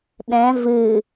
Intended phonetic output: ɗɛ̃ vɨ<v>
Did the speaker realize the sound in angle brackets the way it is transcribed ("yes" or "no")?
no